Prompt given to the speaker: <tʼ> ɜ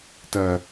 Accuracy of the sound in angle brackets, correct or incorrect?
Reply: incorrect